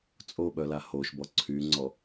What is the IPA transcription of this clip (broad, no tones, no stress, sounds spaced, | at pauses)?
t͡sʼ o ɓ œ l a h o ʃ b ɔ ǀʰ y ŋ͡ǀ ɔ